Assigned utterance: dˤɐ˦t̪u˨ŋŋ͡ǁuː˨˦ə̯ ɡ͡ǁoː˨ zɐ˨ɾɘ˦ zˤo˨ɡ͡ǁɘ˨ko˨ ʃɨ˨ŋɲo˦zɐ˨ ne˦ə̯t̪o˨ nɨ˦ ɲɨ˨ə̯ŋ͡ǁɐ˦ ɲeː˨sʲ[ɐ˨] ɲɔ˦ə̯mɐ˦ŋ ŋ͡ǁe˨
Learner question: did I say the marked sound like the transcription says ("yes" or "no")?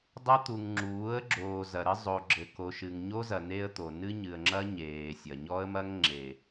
yes